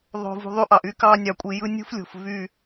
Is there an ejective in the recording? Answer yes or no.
yes